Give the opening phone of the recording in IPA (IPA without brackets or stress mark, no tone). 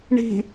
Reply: ɳ